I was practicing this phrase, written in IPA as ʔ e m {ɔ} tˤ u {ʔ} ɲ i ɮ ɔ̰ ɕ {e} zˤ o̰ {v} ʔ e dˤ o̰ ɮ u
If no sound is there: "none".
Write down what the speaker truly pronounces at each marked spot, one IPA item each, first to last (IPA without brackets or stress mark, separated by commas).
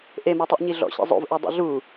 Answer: ɔ, ʔ, ḛ, v